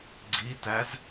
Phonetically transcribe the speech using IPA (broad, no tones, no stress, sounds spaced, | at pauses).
ɡ͡ǀ i t æ z